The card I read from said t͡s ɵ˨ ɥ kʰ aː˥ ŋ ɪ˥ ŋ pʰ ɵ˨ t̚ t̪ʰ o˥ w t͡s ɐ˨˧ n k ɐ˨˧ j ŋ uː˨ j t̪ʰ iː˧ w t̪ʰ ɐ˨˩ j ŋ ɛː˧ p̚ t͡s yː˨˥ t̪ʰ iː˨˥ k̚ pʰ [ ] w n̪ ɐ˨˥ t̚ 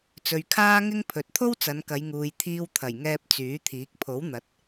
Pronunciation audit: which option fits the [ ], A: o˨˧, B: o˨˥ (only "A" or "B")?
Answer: B